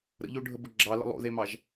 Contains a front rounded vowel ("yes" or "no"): no